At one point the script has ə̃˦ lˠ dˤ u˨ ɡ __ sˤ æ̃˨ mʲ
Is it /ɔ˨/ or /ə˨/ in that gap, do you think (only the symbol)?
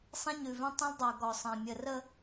ɔ˨